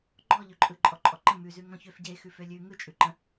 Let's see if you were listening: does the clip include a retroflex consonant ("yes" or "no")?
no